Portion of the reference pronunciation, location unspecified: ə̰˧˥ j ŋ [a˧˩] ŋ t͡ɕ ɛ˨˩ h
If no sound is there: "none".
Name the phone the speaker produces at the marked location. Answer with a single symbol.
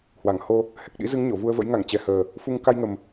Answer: a˧˩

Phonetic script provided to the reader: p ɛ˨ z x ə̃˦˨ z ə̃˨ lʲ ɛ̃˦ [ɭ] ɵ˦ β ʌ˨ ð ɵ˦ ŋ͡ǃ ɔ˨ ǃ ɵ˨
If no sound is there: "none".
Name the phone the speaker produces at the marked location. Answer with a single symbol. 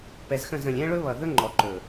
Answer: ɭ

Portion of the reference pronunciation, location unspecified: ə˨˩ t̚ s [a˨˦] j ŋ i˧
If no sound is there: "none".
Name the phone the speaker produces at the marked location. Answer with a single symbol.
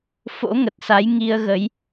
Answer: a˨˦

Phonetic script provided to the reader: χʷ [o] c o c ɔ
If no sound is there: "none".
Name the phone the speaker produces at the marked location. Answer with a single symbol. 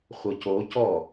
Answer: ɤ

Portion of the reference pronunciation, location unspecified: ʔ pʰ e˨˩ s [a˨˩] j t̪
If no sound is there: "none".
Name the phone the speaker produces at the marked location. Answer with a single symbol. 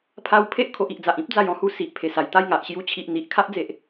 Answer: a˨˩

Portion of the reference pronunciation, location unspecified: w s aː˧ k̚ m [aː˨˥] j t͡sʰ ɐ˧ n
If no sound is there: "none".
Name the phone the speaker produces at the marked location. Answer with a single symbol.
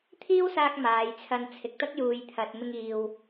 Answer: aː˨˧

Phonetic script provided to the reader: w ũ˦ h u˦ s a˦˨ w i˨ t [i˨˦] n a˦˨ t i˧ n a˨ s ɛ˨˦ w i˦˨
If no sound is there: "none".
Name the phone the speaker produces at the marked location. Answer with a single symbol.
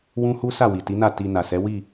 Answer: i˨˦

